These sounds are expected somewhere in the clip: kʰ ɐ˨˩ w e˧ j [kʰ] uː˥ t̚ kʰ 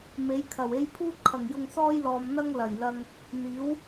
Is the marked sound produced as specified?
no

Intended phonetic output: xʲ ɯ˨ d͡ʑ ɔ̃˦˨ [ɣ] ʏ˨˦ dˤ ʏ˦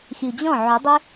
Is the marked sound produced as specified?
no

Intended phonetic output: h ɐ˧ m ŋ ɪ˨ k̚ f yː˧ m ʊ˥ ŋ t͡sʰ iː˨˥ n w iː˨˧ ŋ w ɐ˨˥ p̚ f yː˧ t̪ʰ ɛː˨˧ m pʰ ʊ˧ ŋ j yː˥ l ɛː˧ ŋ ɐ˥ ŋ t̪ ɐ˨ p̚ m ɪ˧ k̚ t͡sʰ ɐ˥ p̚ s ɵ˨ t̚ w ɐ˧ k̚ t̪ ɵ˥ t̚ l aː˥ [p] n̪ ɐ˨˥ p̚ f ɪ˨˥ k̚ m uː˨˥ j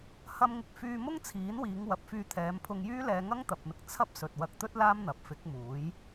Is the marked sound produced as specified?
no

